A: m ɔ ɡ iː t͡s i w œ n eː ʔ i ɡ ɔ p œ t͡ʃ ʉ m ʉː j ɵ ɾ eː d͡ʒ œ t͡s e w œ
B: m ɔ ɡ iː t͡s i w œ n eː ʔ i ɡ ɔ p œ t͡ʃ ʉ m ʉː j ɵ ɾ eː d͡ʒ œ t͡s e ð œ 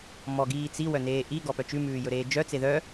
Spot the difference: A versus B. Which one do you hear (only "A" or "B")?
B